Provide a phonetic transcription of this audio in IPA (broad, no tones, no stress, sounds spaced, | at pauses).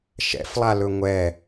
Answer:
ʃ ɛ̰ f lˠ a l ɵ ŋʷ ɛ